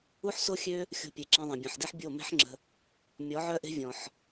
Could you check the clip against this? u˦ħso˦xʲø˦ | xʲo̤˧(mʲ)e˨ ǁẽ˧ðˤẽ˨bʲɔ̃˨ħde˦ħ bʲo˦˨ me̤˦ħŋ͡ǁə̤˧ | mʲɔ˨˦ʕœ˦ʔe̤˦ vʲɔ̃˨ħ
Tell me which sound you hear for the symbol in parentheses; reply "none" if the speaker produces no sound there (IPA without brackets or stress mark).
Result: pʲ